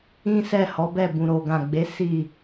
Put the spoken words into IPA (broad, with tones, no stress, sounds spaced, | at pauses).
ĩ˦ s ɛ˦˨ h ɔ˨˦ b ɛ˦˨ b ũ˨ ɾ o˨ ɡ ã˨ ɡ͡b e˨˦ s i˦˨